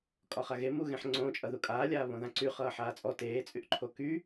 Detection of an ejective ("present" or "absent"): present